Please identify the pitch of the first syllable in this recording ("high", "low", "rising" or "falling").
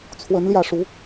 rising